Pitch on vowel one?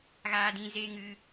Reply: high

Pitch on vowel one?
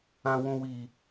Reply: low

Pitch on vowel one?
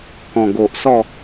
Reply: low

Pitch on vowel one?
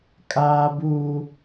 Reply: high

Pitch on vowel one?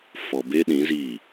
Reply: low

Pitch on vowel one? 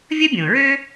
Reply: high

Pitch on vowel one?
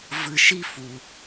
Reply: low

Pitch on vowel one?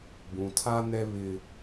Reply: low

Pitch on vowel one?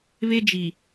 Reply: high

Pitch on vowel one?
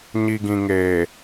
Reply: low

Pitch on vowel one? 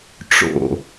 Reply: low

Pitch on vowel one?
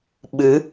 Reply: rising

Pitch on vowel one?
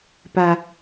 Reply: low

